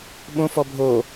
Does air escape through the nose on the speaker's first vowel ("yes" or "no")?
yes